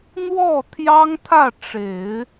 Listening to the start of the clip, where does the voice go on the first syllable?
falling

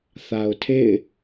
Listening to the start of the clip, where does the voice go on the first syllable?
low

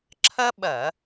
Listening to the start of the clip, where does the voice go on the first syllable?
high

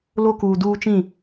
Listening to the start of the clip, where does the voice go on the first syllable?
high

